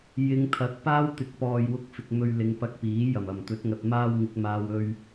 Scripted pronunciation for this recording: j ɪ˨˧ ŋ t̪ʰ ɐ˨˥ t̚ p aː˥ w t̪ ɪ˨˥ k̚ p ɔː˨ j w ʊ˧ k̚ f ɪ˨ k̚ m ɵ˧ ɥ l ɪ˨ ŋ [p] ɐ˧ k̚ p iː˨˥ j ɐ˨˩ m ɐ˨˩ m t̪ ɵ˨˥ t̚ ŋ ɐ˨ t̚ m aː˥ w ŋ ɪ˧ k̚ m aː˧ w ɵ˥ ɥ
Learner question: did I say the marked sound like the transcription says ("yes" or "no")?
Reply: yes